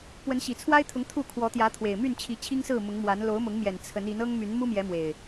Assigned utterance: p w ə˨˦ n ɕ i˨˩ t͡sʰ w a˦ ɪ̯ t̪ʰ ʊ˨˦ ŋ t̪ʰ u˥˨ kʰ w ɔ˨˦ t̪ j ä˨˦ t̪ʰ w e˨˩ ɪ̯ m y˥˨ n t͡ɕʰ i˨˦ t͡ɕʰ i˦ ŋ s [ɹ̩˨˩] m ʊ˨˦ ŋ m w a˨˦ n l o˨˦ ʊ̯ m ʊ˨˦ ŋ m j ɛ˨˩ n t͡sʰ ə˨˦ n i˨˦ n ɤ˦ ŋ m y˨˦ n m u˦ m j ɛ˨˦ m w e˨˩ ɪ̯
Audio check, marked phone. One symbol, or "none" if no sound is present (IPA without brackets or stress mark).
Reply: ɹ̩˥˨